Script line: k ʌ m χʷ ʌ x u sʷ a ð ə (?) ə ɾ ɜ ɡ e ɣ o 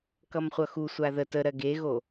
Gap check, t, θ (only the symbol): t